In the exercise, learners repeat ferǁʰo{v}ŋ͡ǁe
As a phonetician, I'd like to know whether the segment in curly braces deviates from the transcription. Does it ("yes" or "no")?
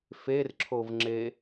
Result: no